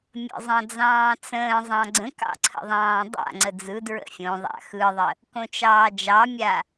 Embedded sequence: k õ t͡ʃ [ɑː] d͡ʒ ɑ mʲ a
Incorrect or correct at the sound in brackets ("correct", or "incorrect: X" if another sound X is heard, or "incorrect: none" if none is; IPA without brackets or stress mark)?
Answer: correct